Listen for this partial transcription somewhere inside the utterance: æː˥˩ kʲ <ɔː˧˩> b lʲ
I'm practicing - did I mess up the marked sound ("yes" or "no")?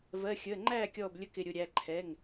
no